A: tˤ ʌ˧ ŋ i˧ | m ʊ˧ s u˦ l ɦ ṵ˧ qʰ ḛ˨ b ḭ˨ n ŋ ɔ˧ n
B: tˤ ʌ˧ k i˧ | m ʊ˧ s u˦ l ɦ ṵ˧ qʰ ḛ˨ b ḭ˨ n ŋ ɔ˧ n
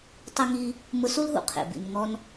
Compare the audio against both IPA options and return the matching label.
A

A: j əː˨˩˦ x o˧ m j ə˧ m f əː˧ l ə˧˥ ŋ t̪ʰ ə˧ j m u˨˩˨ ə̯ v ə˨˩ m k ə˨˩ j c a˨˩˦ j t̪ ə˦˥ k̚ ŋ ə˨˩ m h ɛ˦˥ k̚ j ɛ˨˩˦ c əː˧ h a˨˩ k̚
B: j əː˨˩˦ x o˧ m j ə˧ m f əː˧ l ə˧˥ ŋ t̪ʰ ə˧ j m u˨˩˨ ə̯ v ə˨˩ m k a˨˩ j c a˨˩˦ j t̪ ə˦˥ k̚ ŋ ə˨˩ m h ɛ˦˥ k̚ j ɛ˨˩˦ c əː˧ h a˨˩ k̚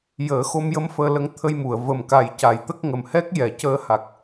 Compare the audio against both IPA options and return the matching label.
B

